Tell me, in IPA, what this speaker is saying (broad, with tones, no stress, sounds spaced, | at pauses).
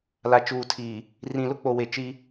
l a˨ t͡ʃ uː˨ tʰ iː˨ | r ĩ˨ l ʊ˦ k͡p o˨ w e˨ t͡ʃ i˦